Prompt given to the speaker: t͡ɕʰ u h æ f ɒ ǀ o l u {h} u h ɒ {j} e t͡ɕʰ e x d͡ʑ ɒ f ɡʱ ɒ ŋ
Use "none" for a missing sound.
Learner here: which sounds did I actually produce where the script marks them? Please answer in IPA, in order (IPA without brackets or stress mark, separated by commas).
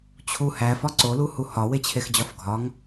h, w